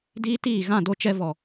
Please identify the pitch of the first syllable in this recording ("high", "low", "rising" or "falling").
high